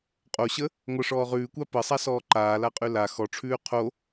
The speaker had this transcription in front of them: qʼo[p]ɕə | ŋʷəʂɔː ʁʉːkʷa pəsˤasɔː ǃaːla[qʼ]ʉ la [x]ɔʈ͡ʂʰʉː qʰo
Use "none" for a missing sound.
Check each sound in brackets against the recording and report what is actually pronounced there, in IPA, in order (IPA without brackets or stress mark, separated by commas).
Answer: none, qʼ, x